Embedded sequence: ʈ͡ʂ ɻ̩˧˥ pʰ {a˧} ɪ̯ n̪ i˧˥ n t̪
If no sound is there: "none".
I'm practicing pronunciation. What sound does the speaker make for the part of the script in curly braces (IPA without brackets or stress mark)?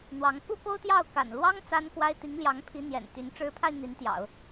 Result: a˧